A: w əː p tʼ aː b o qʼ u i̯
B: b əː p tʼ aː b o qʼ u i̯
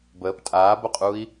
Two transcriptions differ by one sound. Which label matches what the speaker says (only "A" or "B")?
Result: B